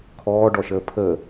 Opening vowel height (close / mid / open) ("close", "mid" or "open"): mid